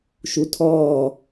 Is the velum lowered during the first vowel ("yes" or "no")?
no